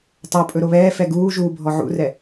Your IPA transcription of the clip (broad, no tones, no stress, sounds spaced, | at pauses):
tˤ o pʼ ɵ ɾ o β ɛː f ɛ ɡ uː ʒ uː bʱ ɔ ʕ ṵ r ɛ